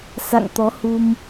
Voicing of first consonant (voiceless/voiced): voiceless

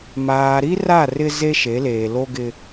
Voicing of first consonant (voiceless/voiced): voiced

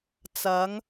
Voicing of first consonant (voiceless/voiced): voiceless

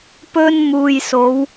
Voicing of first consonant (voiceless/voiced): voiceless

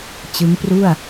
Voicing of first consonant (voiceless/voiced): voiceless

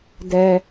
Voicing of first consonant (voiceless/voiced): voiced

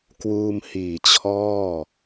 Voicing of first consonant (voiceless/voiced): voiceless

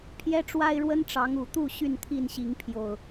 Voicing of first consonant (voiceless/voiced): voiceless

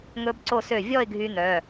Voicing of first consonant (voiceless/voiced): voiced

